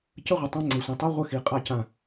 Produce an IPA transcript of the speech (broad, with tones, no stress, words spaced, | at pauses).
cə˦ʁʷə˨ tˤã˦ ŋ͡ǀe˨sʷĩ˨ tˤɤ˦ ʁʷə˦xi˨qʼa˦cã˦˨